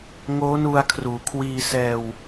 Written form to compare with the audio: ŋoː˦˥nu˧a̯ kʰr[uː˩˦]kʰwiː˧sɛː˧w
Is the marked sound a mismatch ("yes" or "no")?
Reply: no